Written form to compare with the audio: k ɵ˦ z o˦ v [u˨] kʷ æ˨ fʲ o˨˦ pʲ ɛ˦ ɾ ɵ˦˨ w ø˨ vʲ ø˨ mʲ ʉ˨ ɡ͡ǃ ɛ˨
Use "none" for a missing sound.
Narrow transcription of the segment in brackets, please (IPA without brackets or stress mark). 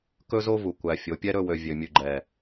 u˨